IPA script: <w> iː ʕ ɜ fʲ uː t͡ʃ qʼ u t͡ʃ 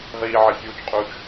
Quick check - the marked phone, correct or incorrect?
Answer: incorrect: ʁ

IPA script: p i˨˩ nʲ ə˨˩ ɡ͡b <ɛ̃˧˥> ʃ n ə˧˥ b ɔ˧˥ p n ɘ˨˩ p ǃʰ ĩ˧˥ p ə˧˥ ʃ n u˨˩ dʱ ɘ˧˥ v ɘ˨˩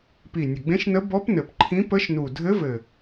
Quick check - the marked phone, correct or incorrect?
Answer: incorrect: ẽ˧˥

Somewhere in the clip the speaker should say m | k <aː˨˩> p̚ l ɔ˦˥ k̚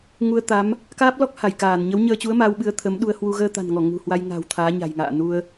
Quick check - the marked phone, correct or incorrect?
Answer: incorrect: aː˦˥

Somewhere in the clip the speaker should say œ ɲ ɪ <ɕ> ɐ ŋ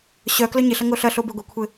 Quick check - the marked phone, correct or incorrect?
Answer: incorrect: ɬ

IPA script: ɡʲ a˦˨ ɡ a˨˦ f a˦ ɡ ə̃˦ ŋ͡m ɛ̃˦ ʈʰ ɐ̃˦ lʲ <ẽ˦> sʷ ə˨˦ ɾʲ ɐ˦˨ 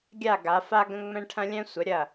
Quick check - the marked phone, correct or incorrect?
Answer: incorrect: ɛ̃˦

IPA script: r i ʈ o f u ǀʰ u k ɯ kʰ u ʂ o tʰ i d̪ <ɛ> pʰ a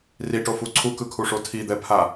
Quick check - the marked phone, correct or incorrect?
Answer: correct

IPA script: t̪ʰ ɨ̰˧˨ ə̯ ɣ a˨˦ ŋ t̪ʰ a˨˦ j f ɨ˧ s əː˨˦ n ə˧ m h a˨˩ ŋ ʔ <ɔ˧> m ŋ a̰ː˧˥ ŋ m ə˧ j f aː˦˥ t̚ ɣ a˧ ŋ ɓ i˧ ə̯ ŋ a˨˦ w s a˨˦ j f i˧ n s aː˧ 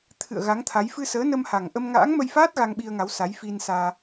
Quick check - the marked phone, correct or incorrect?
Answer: incorrect: ə˧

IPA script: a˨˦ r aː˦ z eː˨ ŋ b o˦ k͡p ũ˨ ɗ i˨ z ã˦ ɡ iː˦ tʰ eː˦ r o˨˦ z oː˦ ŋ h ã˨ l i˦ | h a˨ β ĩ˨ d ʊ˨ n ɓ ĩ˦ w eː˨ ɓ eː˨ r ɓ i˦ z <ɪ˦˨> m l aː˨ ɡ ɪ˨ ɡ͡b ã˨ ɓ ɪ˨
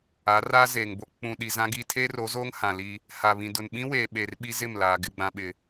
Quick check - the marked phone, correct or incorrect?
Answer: correct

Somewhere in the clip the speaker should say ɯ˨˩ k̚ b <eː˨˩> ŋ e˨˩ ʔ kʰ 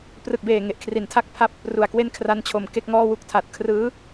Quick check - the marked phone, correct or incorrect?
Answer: correct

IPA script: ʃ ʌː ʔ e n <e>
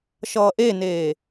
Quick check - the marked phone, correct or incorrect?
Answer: incorrect: eː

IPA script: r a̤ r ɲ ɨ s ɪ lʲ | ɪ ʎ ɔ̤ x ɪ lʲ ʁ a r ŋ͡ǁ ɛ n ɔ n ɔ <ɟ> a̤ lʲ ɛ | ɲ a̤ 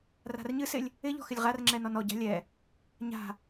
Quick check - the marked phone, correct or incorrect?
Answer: correct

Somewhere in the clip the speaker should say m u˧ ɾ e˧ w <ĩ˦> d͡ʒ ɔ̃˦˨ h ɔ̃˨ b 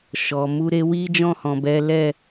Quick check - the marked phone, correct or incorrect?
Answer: incorrect: i˦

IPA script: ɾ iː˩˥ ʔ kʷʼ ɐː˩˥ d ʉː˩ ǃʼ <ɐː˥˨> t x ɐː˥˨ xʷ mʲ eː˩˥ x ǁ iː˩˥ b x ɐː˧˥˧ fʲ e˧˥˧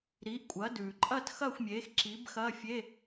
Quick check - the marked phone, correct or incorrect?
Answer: correct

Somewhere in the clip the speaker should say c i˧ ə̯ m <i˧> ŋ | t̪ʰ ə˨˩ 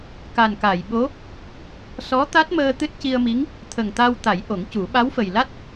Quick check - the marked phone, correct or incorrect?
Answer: incorrect: i˧˥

